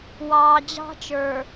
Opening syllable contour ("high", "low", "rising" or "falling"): low